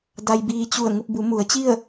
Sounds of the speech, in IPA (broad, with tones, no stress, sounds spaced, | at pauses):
d a˧ j b iː˧ t͡ɕ u˧˩ ə̯ ŋ u˥˨ p̚ b u˩˧ m u˩˧ ə̯ t͡ɕ i˥˨ ə̯